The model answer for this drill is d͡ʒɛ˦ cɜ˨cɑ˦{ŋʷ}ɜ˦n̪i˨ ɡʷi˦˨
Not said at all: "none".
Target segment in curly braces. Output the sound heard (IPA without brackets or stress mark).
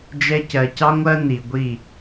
ŋʷ